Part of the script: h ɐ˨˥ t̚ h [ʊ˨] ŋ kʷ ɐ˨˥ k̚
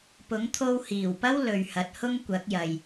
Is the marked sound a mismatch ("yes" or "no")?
yes